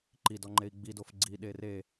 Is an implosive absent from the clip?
no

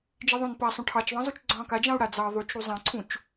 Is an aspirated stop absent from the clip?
no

